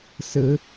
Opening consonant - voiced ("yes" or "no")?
no